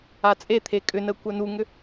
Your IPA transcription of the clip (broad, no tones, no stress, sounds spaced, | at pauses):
a t͡sʼ e t̪ʰ e kʼ ʏ n ə kʷ œ n u ŋ ʏ